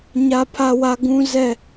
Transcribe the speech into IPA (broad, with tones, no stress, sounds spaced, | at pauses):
ɲ a˦ pʰ a˦ w a˦ ɡ ũ˦ z ɛ˦